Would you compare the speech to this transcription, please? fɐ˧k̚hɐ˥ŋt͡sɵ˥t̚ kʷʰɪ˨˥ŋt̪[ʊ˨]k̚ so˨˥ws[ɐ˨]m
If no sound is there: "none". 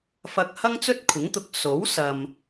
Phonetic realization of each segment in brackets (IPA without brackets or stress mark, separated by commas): ʊ˨, ɐ˨